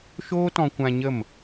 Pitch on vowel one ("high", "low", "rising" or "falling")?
high